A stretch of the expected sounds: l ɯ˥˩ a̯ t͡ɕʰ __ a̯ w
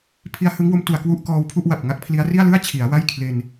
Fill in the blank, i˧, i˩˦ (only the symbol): i˩˦